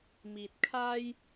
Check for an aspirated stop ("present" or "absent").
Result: present